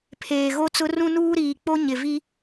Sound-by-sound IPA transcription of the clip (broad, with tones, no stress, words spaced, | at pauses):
pʰeː˨ɣo˦t͡sʊ˦ rũ˦nuː˦ɾiː˨k͡po˦ ɲɪ˨vi˦